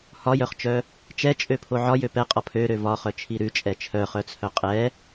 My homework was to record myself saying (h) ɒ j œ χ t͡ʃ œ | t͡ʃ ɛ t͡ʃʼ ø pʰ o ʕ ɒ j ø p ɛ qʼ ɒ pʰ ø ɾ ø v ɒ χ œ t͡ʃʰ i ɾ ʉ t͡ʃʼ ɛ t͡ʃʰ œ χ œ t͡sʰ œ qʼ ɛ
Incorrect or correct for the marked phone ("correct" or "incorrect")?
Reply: correct